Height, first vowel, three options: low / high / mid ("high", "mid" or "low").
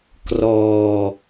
mid